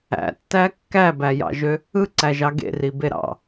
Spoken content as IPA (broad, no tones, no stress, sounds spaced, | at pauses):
æ̰ tː æ kː æ b æ j ɑ̰ ʒ ø | ɯ ǀ æ ʒ ɑ ɡ ḛ r i b e ɾ ɑ̰